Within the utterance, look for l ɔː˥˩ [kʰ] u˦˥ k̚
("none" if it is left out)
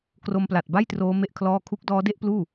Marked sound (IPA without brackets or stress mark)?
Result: kʰ